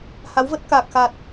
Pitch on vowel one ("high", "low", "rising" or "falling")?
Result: rising